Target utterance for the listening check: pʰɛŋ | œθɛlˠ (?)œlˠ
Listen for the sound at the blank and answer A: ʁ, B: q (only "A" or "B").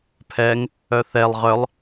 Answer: A